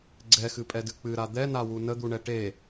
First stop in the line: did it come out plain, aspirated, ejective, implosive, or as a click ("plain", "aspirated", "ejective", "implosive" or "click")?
click